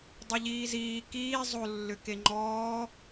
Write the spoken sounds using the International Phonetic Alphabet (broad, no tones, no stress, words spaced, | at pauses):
dˤʏʎiːziː kiː zˤo lːʏkeŋ͡ǃɔː